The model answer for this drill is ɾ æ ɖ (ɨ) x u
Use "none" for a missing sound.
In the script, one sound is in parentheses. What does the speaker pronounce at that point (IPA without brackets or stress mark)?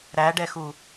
ɛ